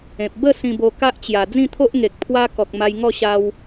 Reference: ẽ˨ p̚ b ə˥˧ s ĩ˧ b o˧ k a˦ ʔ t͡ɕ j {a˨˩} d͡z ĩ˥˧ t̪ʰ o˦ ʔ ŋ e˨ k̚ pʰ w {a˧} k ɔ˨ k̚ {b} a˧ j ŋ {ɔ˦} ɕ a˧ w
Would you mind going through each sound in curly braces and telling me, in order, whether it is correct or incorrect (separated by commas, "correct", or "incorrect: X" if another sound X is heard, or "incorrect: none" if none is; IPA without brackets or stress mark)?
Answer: correct, correct, incorrect: m, incorrect: ɔ˥˧